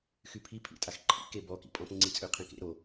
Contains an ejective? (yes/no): yes